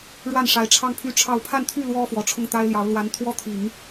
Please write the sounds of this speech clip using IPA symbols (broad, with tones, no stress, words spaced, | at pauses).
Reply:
ɻwa˥˩nʂa˧˥ɪ̯ ʈ͡ʂʰɑ˥˧ŋpʰy˥˧ ʈ͡ʂʰɑ˥˧ʊ̯ pʰa˥˧nt̪ʰy˥˩ lwɔ˥fwɔ˨˩ ʈ͡ʂʰʊ˥˩ŋt̪a˥ɪ̯ljɑ˧˥ʊ̯ lwa˧˥nt̪ʰwɔ˥ t̪ʰi˨˩˦ŋ